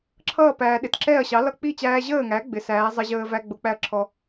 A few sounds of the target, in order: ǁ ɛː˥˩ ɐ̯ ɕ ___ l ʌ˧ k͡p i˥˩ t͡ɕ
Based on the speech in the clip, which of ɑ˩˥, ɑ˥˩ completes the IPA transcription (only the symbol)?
ɑ˩˥